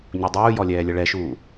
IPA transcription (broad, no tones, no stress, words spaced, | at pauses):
ɲudˤuːjɔ lʲɛːlʲəɭɛʃuː